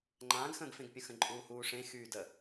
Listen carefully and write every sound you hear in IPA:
ŋ͡ǃãːɡxə̃ːɡfẽɡpʲə̃ xə̃ǃʼuːhuːʂẽ xyːdə

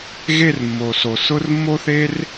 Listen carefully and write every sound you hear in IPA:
ɣe˦˨r mːo˨so˨ sʊ˦r mːo˦θe˦r

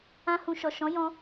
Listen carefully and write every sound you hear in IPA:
ã˦hũ˧ ʃɔ˨ʃɔ̃˨˦jɔ̃˧

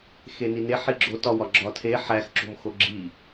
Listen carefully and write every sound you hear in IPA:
xenine ħiɡ͡ǁotɒ wɒɡ͡ǁɒtʰe ħæxǁo̤mxo ɡ͡ǁi

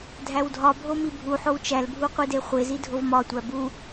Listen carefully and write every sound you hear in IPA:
dʱæwdʱɒbʱo mibʱuħow t͡ʃælbʱu qʷideχʷezi dʱovmɒtʷæ bu

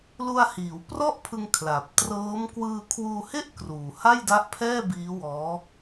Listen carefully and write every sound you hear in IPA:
lu˧a̯hiː˩˦wprɔ˥˩ʔpʰɯ˧ŋ kʰla˨˩p̚trɤː˦˥m kwɯː˧kʰwuː˧he˥˩ʔ kruː˨˩ha˥˩jda˦˥ʔpʰɛː˥˩ biː˦˥wɔː˦˥

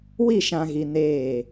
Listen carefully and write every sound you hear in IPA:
wi˦˨ʃã˨ɣi˨ neː˦˨

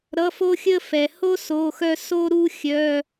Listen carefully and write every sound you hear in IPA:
ɾʌ˧˥˧fo˥xʲə˥fɛ˨ ho˥ so˧˥˧xœ˥ so˥ɾu˥ xʲœ˧˥˧

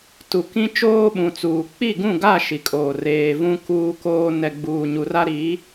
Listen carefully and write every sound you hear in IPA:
tu˨kĩ˦ t͡ʃoː˦ɓũ˨t͡suː˨ k͡pi˦˨ɡũ˦˨ɡa˦˨ ʃi˨kʼoː˨ reː˨vũ˦ kuː˦koː˦ nɛ˨ɡ͡buː˨ ɲu˨ra˦ ɾi˨˦

